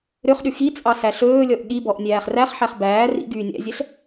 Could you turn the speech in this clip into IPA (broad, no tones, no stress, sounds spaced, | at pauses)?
ɾ ø χ ɗ y x i t͡sʼ ɑ s æ ɬ ɵː lʲ ɔ ʔ ɠ i b ɔ ʔ nʲ æː χ r æ χ ħ æ χ b æː r ḭ ɡ yː nʲ æ̰ zʲ ɛ ɬ